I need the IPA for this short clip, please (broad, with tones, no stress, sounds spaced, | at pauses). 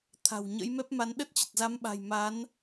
t̪ʰ a̤˨˩ w ɲ ə̰˧˥ j m ɛ˦˥ p̚ m a˧ n ɗ ə˦˥ t̚ t͡ɕ ə˨˩ t̚ z a˨˦ m ɓ a̤˨˩ j m a˨˦ n